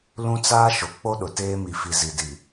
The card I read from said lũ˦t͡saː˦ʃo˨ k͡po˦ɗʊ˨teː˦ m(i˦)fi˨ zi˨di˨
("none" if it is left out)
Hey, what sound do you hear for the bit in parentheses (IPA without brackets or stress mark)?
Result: i˨